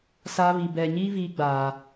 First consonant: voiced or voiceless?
voiceless